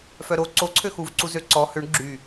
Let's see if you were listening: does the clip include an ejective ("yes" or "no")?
no